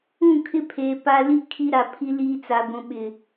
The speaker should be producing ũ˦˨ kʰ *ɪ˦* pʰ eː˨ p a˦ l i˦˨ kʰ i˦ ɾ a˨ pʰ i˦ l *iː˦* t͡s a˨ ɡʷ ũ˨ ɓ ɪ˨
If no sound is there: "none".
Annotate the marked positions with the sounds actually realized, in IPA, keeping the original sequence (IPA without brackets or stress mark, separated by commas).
ɪ˦, iː˦